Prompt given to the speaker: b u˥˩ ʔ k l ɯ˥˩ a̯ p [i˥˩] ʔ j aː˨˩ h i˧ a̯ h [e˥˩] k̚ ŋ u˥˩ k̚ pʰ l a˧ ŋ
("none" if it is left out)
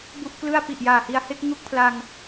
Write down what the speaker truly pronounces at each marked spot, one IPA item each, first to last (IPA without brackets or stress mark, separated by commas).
i˨˩, e˥˩